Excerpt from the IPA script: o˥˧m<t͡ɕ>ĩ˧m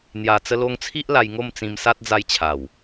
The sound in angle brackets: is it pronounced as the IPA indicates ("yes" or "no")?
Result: no